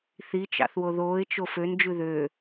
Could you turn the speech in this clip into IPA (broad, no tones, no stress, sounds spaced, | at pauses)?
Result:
θ i t͡ʃ ɑ̰ θ w o ð oː ɪ̯ t͡ʃ o f ø n d͡ʒ ʉ ð ø